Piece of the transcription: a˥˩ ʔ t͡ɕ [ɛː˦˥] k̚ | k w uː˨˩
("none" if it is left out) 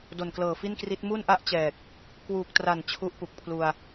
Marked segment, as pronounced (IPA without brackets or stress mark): ɛː˨˩